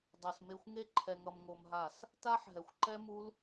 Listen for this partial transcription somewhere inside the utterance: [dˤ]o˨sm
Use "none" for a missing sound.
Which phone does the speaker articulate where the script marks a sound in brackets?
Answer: dˤ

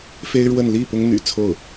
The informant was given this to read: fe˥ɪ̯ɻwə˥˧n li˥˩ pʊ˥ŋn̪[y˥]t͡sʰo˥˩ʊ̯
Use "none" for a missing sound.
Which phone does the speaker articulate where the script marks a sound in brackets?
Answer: y̰˨˩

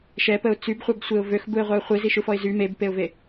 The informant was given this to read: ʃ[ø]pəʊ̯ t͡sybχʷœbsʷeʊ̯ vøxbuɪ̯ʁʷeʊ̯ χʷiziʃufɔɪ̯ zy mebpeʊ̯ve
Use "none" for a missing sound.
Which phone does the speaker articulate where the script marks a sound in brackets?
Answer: ɛ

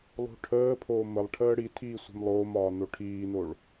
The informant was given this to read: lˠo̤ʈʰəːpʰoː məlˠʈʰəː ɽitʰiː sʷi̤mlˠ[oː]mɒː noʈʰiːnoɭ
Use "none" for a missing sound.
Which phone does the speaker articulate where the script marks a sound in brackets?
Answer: oː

